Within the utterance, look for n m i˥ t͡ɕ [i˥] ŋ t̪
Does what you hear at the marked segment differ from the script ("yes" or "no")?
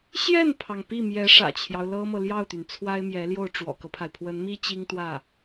no